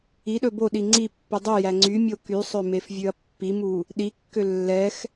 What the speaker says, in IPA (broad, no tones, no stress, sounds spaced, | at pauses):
i ɗ ɵ b o ɗ i ŋ͡ǀ i pː y dˤ y j æ ŋ͡ǀ y mʲ o k y sˤ ø m e f vʲ ʉ ɐ̯ pː i m u | ɗ i kː ø lː ɛ x